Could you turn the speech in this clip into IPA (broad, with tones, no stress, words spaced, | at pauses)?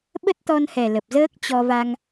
ɓə˦˥t̚t̪ɔ˧nhɛ˨˩ lə˨˩p̚zəː˦˥k̚t͡ɕɔ˧va˧ŋ